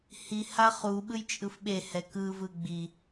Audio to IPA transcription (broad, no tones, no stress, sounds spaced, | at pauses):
h i h a χ u ɓ ɯ j t͡ʃʼ ɯ f ɓ e h ɛ k ɯ v ɯ ɡ͡b i